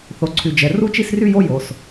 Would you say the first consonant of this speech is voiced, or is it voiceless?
voiceless